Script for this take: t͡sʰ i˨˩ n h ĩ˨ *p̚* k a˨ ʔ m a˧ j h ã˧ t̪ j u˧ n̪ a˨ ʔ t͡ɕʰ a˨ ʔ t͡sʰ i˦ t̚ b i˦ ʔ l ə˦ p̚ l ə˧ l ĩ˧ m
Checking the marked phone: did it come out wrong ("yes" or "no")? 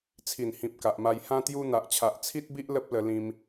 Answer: no